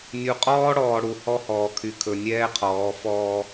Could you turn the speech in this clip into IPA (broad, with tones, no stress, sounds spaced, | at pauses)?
nʲ u˨ qʼ ɔː˦ ɽ ɔː˨ ɽ u˨ h ɔ˦ h ɔː˨ kʰ y˨ kʰ ɵ˨ nʲ ɛː˦ qʰ ɔː˨˦ f ɔː˦